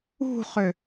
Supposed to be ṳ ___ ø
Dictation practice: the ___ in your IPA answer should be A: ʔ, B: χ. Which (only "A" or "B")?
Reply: B